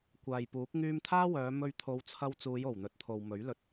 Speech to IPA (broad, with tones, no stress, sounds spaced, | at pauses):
kʷ aː˨ j p uː˨˥ k̚ ŋ yː˧ m t̪ʰ aː˥ w œː˨˧ m ɵ˧ ɥ t̪ʰ o˨˧ w t͡sʰ ɐ˧ w t͡s uː˨˧ j o˨˩ w n̪ ɵ˨ t̚ t̪ʰ o˨ w m ɵ˨˥ ɥ l ɵ˧ t̚